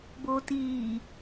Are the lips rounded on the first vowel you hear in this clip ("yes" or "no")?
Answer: yes